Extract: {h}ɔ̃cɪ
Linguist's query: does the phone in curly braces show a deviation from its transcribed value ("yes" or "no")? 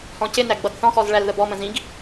no